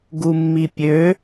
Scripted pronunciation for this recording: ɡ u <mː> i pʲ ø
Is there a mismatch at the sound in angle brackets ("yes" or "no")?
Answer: no